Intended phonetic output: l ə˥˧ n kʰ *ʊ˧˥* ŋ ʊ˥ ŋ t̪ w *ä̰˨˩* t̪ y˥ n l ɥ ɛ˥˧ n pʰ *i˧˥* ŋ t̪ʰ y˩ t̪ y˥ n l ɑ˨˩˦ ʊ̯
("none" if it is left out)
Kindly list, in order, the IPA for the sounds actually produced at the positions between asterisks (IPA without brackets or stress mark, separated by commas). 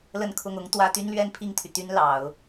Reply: ʊ˥˩, ä˥, i˥˩